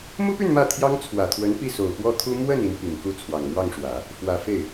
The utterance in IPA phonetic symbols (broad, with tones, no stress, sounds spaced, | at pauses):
m u˥ p y˥˧ n m ä˥˩ t̪ʰ j ɑ˥ ŋ t͡sʰ w ä˨˩ t̪ʰ w ə˧˥ n p i˥˩ s o˨˩ ʊ̯ p w ɔ˥˩ t̪ʰ u˥ m w ə˥˩ n i˧˥ n p i˨˩ ŋ k u˥˩ t͡sʰ w ɑ˨˩ ŋ m w ɑ˥˩ ŋ ʂ w ä˨˩˦ | f w ä˨˩ f e˥˩ ɪ̯